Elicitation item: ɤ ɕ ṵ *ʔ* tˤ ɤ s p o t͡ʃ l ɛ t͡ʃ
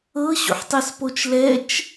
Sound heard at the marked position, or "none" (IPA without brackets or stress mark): ħ